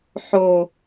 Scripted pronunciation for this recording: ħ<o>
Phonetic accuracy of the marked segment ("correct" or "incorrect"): correct